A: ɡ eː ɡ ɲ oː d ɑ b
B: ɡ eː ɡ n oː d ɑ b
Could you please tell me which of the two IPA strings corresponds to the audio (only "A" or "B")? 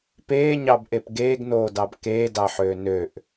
B